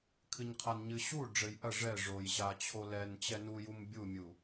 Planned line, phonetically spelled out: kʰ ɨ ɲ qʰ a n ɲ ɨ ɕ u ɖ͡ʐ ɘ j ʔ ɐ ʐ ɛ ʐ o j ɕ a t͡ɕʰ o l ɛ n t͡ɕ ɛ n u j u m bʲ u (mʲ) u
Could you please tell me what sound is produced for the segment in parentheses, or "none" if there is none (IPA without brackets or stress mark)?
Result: mʲ